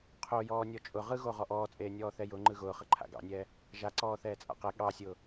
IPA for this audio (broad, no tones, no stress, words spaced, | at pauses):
qʰojɔːnʲɔ t͡ʃʼʊ ʁɯɣo ʁɔʔɔːt͡sʼeːnʲɔː θɛjʊŋ͡ǃɯ ɣʊːχə ǃʰa̰ɡɑ̰nʲɛː | ʒaǀɔː θɛːt͡sʼa̰qɛ ɠɑsʲʊː